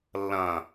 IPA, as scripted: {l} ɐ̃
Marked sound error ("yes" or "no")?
yes